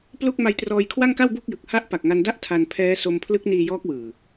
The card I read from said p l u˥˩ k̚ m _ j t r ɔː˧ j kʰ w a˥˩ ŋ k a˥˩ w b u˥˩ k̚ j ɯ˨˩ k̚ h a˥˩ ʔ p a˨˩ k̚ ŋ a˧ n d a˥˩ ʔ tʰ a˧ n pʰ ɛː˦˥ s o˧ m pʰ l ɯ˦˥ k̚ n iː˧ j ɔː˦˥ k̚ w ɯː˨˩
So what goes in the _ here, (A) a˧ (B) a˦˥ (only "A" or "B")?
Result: A